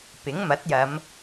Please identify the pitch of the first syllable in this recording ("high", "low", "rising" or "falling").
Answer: rising